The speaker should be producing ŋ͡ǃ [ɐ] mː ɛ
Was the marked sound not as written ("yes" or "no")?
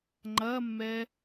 no